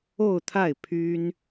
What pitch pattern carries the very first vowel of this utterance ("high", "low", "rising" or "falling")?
falling